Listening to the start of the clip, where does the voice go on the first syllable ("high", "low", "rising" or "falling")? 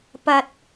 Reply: low